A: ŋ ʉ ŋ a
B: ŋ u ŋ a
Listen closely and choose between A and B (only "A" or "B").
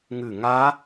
A